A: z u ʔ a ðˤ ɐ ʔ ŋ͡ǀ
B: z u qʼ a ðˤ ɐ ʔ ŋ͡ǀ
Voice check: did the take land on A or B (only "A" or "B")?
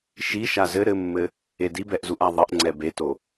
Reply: A